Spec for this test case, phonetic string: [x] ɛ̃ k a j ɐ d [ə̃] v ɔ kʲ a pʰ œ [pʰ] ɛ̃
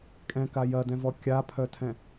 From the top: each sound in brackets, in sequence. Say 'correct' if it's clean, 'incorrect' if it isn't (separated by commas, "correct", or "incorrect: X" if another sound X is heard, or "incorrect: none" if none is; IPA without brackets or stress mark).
incorrect: kʼ, incorrect: ɛ̃, incorrect: tʰ